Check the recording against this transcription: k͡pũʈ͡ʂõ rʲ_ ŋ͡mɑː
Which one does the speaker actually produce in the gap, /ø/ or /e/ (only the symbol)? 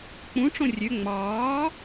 ø